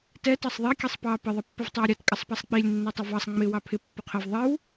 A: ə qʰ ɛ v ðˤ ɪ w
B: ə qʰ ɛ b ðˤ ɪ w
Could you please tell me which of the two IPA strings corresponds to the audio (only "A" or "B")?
A